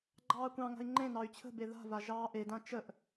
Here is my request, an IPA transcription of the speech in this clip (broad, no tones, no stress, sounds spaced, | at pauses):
ɡ͡ǃ ɑː kʷ ɑ̃ ŋ a̤ i̯ ŋ͡ǃ ẽ n ɑ y̯ t͡ɕʰ ə̤ b e ð a̤ v a ʒ ɑː ʔ e d ã t͡ʃ ə ʔ